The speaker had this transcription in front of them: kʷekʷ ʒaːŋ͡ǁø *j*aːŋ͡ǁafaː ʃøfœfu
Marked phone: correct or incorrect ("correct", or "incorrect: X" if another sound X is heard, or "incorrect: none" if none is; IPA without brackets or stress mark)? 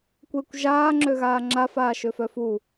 incorrect: ɣ